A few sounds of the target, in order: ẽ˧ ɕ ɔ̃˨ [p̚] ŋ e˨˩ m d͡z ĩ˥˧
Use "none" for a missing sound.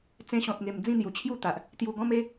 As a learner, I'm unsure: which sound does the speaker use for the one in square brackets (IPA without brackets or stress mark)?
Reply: t̚